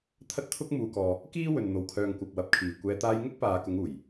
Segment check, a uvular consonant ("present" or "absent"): absent